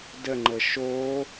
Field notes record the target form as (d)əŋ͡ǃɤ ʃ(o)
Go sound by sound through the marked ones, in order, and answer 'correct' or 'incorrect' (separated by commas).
correct, correct